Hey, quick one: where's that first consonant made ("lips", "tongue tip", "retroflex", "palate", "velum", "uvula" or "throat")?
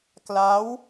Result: velum